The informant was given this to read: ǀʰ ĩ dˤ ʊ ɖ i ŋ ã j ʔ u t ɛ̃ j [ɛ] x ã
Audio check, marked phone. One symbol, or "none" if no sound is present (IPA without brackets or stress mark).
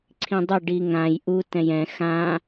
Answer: ɛ̃